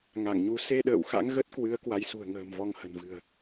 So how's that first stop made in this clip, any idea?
implosive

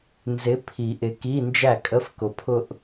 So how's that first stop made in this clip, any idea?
aspirated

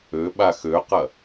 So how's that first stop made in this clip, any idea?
implosive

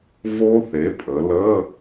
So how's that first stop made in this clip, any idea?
ejective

